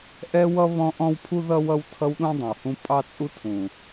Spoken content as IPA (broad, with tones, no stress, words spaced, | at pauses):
ʔɛ˦wʌ˦ βɔ̃˦ʔɔ̃˦wpʰu˦ ðʌ˦wʌ˦w tʰʌ˦wɗũ˦dˤə̃˨whũ˦ pʼɑ˦t͡sʼu˦tʰũ˨